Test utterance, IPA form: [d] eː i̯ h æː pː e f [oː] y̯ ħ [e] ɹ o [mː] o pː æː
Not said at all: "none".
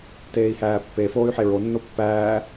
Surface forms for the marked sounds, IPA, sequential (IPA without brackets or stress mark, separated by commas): t, oː, e, nː